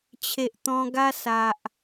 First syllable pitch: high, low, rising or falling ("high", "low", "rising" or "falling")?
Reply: low